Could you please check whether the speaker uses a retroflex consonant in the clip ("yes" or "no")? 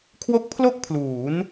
no